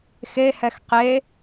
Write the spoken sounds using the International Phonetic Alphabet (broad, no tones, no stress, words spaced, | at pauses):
xehɛx qe